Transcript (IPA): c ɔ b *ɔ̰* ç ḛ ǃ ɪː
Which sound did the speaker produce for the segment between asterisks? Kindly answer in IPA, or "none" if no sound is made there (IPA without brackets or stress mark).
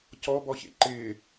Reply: ɔ